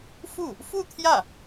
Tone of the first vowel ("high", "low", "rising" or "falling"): falling